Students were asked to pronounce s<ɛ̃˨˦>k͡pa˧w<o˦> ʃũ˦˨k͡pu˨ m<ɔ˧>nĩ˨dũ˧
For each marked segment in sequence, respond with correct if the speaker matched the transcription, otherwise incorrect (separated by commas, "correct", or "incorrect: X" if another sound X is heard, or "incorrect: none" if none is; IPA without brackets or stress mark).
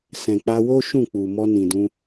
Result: incorrect: ɛ̃˨, correct, correct